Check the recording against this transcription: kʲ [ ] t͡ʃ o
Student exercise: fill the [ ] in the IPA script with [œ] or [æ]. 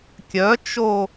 œ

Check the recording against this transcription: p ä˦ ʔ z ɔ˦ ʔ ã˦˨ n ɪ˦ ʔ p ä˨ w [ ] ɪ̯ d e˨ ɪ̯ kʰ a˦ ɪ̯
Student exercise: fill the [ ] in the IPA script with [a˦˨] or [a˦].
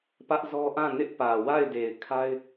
a˦˨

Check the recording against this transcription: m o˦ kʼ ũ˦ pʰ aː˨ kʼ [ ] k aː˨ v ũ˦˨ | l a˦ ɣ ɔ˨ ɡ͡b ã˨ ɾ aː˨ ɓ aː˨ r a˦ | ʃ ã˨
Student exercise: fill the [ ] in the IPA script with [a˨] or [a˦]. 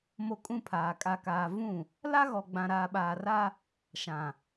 a˨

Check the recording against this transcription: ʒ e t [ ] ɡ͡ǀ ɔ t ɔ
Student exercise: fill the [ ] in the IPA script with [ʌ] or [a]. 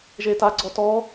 a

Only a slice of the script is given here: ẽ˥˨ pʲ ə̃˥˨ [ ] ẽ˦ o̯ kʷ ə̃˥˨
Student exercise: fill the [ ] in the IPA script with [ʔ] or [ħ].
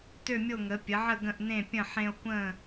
ħ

